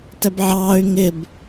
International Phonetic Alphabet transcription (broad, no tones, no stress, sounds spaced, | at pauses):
t ɛ b ʕ ɑː y̯ ŋ ɪ b